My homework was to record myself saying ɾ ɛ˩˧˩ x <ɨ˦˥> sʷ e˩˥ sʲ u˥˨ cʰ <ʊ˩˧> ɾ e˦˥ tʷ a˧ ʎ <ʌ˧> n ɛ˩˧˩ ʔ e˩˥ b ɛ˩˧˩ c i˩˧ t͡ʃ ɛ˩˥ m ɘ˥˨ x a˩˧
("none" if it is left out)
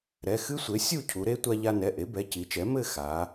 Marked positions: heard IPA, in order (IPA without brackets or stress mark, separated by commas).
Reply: ɨ˦˥, u˩˧, a˧